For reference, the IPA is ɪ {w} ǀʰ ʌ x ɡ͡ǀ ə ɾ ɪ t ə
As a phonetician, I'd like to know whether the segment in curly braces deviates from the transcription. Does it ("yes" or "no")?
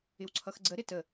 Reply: no